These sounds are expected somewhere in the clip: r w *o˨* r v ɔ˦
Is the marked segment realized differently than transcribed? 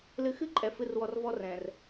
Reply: yes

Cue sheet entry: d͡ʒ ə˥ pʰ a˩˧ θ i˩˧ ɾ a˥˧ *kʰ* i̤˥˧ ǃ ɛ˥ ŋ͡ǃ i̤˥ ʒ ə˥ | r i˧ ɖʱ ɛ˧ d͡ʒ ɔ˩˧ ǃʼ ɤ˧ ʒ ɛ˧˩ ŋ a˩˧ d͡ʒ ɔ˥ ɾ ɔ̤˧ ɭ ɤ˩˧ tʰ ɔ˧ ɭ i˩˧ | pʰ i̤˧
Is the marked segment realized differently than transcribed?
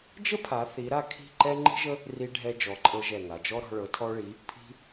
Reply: no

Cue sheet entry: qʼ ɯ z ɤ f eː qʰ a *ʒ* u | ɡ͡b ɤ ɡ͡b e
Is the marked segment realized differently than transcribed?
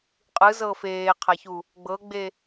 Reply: yes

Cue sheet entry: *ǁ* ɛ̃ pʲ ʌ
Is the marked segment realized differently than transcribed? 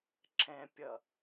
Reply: no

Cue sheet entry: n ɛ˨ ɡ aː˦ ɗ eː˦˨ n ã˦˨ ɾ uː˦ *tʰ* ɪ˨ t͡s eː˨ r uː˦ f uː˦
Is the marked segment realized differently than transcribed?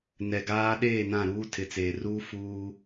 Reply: no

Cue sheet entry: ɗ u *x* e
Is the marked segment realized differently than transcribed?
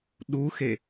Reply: no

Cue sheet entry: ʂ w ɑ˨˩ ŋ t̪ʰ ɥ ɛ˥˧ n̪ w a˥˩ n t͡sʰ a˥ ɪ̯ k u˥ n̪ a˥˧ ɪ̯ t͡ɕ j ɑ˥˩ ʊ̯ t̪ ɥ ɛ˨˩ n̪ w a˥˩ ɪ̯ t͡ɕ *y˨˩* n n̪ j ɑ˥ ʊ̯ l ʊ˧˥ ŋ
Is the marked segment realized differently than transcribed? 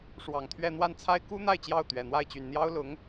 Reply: no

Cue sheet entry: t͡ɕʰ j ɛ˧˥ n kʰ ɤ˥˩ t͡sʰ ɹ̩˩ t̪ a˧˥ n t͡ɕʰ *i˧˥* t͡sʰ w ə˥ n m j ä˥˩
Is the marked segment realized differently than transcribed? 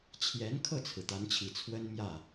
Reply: yes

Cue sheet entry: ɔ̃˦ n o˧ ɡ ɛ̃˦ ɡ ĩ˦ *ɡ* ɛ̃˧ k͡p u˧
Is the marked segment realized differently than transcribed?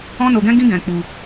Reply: no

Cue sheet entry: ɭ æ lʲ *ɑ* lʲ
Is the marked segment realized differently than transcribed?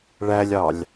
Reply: no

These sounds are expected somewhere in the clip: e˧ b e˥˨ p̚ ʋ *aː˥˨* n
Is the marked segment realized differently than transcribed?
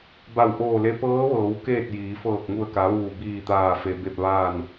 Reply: no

